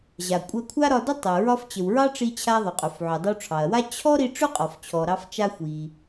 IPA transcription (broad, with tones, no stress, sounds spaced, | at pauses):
ʑ a˩ kʷʼ ɜ˧ kʷʰ a˥ ɾ ɒ˧ d ə˥ tˤ ɜ˩ ɹ ɒ˧ f t͡ɕ ə˩ w ɹ ɑ˥ ʈ͡ʂ i˧ t͡ɕʰ a˧ ðˤ ɵ˩ qʼ ɵ˩ f ʕ ɵ˩ dˤ ə˧ w ʈ͡ʂʰ ɑ˩ ɐ̯ w a˥ t͡ɕʰ ɔ˥ ɾ i˧ ʈ͡ʂ ɵ˥ qʼ ɔ˩ f t͡ɕʰ ɔ˩ ɾ ɑ˧ f t͡ʃ a˧ xʷ i˩